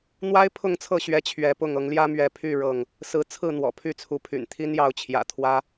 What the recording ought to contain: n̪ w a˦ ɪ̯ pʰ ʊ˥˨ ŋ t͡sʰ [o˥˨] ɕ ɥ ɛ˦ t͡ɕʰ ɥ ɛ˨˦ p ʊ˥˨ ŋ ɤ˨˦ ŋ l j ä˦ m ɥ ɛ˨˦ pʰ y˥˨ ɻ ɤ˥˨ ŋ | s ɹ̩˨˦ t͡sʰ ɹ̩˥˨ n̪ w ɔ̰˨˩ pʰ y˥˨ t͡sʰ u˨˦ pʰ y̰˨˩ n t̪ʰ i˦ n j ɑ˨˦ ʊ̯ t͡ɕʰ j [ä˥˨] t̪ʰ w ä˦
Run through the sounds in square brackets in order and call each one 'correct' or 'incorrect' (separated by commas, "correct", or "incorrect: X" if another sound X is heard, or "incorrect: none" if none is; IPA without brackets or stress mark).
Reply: incorrect: ɤ˥˨, incorrect: ä̰˨˩